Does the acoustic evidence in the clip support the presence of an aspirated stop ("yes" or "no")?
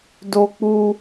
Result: no